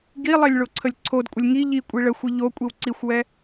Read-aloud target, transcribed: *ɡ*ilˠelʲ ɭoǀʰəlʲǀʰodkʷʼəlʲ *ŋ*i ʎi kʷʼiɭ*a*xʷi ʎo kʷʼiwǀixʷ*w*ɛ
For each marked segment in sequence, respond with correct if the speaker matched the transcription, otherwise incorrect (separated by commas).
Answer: correct, correct, incorrect, correct